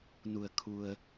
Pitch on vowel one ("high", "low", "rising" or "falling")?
low